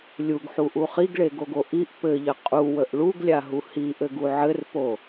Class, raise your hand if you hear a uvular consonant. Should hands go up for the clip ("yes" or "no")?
yes